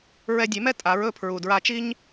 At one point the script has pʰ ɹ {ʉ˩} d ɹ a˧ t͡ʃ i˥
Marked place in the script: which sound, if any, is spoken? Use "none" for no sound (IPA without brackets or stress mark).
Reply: u˩